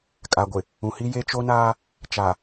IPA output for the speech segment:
kʼa˨ɡʷɪ˨ | ũ˨hi˦ je˦t͡ʃo˦naː˦ | t͡ʃa˨

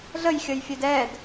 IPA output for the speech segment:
ɮəjxʲəjfʲed ɛd

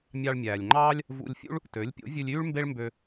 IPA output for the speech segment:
mʲɑ˧ɭmʲæː˩lʲŋ͡ǃɑː˥lʲ | vṵ˧lʲfʲṵ˥ɭ | tø˩˥lʲ pʲo̰˩˥vʲʉ˧lʲyː˥ɭ mbe˥ɭmbø˧

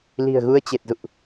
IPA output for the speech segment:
li̤˨˩ə̯ɣu˧ə̯ t͡ɕe˨˩t̚zṵ˧˨ʔ

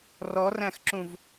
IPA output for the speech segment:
rɔræ̃xǁũv

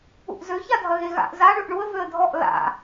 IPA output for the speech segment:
ṵʔzø çadʱɐɣeɣa̰ʔ za ɳʉʔɳuə̯ vøə̯dʱɔʔ la̰

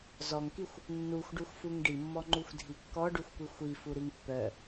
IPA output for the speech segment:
zɔŋkixʷ | nːuxʷɖuxʷfuŋ ɖimːɔŋ͡ǃuxʷdʱi kːɔɖuxʷkʷi xʷifuɾiŋ pːœ

